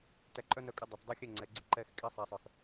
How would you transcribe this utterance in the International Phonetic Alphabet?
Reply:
tæ˧ ǃʼœ˦nœ˧kʼə˧ dˤœ˨t dˤe˦xʲɛ˦˨ŋ͡ǀɛ˨ɡ͡ǀe˦ ǃɛ˧x kʼi˧ sˤɛ˨sˤœ˨x

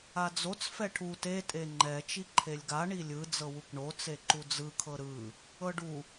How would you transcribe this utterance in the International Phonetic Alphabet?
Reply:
ad͡zot͡s fɛʈʰu te tʼeŋ͡ǃɛ t͡ʃiǃʰelʲɡa ɳilʲɯ d͡zɤwukɳo t͡seǃud͡zɯ kʰɤɾɯ | ɤɖu

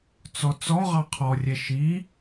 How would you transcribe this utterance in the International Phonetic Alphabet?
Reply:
t͡sɔt͡sɔʁɑ qʰɔrʲɛ ʃi

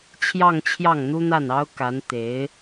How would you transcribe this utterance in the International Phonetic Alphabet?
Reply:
t͡ɕʰjɑ˥˧ŋt͡ɕʰjɑ˥˩ŋn̪u˥n̪a˥˩n ɑ˥ʊ̯ka˧˥n t̪e˧˥ɪ̯

